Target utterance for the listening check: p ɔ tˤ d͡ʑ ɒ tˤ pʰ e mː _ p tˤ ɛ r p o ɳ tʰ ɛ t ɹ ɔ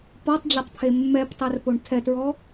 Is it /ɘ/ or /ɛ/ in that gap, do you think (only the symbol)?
ɛ